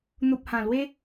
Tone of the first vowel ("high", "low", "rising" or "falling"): low